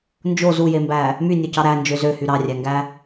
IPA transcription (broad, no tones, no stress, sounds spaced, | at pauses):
n d͡ʒ o z u j e m b æ | m y nʲ o c ɑ ɾ æ n d͡ʒ ø z ø h y ɾ ɑ rʲ æ ŋ ɡ æ